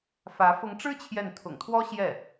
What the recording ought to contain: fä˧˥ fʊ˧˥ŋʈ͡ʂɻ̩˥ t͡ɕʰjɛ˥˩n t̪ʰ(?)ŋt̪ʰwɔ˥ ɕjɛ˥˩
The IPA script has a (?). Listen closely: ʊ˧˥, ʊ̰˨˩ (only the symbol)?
ʊ̰˨˩